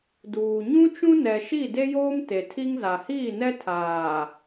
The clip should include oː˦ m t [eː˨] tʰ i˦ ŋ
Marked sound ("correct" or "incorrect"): incorrect